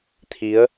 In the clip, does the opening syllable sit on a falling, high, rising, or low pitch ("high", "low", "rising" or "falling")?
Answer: rising